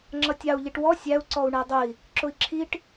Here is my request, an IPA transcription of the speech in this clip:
ŋ͡ǁʌtʲɑu̯ ʎiʈwɔ sʲæu̯ ǀɔu̯ɳædˤəi̯ | ǁʊi̯ǁʰiʈ

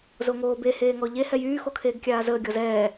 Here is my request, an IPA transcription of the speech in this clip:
zoŋoːbe heːŋɔʎe hɛjyː xokʰeːɡkʲaːzəː ɡʲɔzɛː

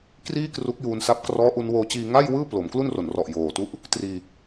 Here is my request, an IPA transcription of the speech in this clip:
kriː˥˩ kru˦˥k̚juː˧nsa˦˥p̚ krɔː˦˥ʔu˧nwoː˧t͡ɕiː˧ ŋa˥˩jwɯː˥˩ plo˨˩mklu˥˩nro˨˩nrɔ˨˩ʔ joː˨˩tu˦˥ʔ | triː˧

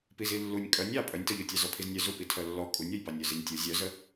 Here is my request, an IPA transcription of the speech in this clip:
pizilːunʲ kʼœnʲ ɑ pʼœnʲtɔʎu tʲɑzɔpʰiznʲœ zupitʰœ lːɔ kʼunʲɔj bɑnʲœzinʲtʲu zʲœzə

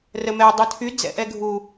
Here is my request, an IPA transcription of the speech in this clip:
rəmɛ dˤutʰy d͡zɛ̰ʔɛɡʱu

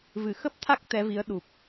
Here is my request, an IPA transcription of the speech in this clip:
vɨ˧˩xə˦˥p̚t̪ʰa˦˥k̚ t̪ɛ˨˦vi˨˦ə̯ɗu˨˩p̚

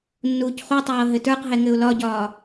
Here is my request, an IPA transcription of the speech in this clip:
nːuːcχutˤɤː ɦɘtə˞qɦɛ ŋɘʊ̯lɒɟɒː

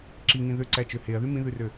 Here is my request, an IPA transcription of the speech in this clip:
ǁiŋĩ ðøǀæt͡ʃø heɐ̯ðy mĩðʉrø

